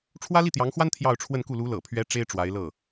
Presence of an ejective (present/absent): absent